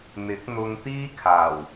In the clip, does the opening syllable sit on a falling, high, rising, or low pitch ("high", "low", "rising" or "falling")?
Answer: rising